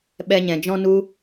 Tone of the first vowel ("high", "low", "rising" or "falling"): high